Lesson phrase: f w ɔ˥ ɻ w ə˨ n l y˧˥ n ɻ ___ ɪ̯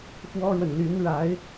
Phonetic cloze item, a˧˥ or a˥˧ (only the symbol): a˧˥